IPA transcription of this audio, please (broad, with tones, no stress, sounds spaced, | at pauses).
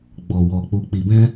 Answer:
ɡ͡b ɔ˨ w ɔ˨ k͡p u˨ k͡p i˨ b ɛ̃˧